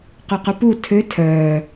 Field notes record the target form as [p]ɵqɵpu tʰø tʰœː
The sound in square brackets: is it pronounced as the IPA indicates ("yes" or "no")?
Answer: no